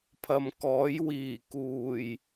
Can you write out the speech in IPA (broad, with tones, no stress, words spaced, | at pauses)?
pʰɐ˨mkɔː˨˥j wiː˨˩kuː˨˩j